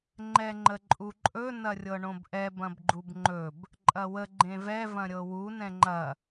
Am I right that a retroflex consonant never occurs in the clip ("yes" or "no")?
no